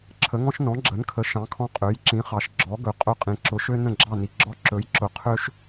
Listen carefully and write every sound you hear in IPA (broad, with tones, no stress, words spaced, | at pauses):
ǁʰə˩˥ŋɔ̃˥ʃ nɔ̃˩˥ɡ͡ǁə˩˥nkʰə˩˥ ʃɑ̃˩˥kʰɔ̃˧ qʼø˩˥jǁĩ˩˥χɑ˩ʃ ɡ͡ǁɔ˩˥ ɡɵ˩ qʼɵ˧qʼĩ˩ ǁʊ˩˥ʃø˥ nə̃˥˩ɡ͡ǁɑ˥˩ni˩ ɡ͡ǁɔ˧ǁɵ˩˥jǁʊ˩ qʰø˥ʃ